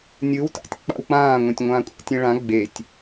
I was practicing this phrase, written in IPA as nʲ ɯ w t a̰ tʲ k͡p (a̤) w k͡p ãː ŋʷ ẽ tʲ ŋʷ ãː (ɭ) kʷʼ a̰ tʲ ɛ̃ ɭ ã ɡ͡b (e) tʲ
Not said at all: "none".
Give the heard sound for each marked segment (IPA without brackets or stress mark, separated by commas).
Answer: a̰, none, e